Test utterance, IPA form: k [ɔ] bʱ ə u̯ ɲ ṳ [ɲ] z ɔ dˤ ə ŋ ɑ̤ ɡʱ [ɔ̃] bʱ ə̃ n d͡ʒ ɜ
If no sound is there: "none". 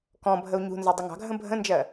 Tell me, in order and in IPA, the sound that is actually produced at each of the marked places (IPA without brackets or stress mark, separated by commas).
ɔ̃, n, ə̃